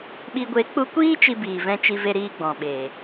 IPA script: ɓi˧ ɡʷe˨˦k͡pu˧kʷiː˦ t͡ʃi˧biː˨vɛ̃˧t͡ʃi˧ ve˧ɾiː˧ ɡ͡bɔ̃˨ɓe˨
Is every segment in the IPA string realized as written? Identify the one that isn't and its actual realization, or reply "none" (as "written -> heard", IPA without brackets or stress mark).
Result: none